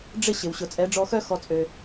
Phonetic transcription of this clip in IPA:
ɖ͡ʐ ɪ˦˨ ɕ ɪ˨ w ɕ ʊ˨ t͡sʼ ɛ˨˦ ɖ͡ʐ ɔ˧ x œ˦ x ɔ˧ t͡sʼ ø˧

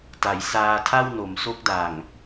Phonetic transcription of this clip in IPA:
t a˩˦ j s aː˧ tʰ a˥˩ w n o˩˦ m s o˦˥ k̚ d a˨˩ ŋ

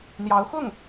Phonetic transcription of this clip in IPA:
n̪ j ɑ˧˥ ʊ̯ x ʊ˥˩ ŋ

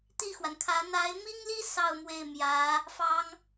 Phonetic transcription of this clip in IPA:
t̪ i˥˩ x w a˩ n kʰ ä˧˥ n̪ a˧˥ ɪ̯ m i˥ ŋ l i˥ s ɑ˥˧ ʊ̯ m w e˥˩ ɪ̯ m j ä˧˥ | f ɑ˥ ŋ

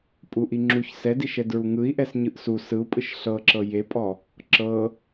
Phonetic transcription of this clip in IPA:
pʼ u ʔ i ŋ͡ǁ u ç s ɛ d i ʃ ɛ d ɹ u ŋ ɯ i̯ ʔ ɛ s ɲ ɯ ʔ s u s ɯ u̯ pʼ ɯ ʃ ɬ ɤ ǁ ɤ j e pʼ ɔ | ǁ ɤ

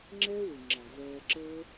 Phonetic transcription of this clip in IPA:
ŋ͡ǁ ɛː˦ w ɨ˨ ŋ͡ǁ ɑ˨ v ɛː˧ ǁ əː˦

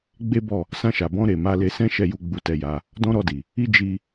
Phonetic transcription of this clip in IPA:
ɡ͡b e˦ b ɔ˦˨ | s ã˧ ʃ a˨ b ɔ̃˧ ɾ e˨ m a˧ l e˧ s ɛ̃˦ ʃ ɛ˧ j u˧ ɡ͡b u˧ t ɛ˧ j a˧ | d ɔ̃˦ ɾ ɔ˧ d i˨ | i˧ d͡ʒ i˧

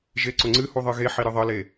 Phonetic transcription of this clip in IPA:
ʒ e ǀ ʊ ŋ͡ǀ ɨ h u ðˤ ɨ ɣ e ħ i ɾ ɨ ðˤ ə l e

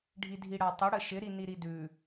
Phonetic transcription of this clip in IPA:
ɖʱ i dʱ i ɽ a tˤ ə ɽ ə ʃ ɪ ɾ i n i ɾ i d ʉ

